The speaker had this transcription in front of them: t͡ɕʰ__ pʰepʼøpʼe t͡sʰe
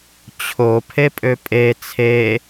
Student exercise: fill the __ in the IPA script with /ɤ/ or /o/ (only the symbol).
o